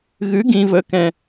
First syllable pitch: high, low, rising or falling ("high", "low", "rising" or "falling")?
rising